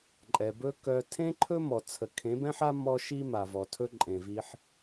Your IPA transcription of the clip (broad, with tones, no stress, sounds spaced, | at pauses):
ǃʼ ɛ˨ b ɵ˧ k œ˧ tʰ ẽ˦ ǃʰ ɵ˦ m ɔ˨ t͡sʰ ə˨ kʰ ẽ˨˦ b ɛ̃˦ ħ a˦ m ɔ˦ ʃ i˦ m a˨ v ɔ˨ tʰ ɵ˧ ǃʼ ẽ˨ v i˧ ħ